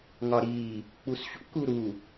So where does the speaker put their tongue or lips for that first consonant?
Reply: velum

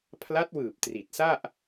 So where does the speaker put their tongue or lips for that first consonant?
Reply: lips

